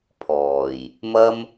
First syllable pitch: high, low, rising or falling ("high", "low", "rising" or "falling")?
low